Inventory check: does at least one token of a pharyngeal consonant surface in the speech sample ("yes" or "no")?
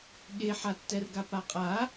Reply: yes